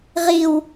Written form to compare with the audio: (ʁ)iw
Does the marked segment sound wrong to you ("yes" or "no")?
no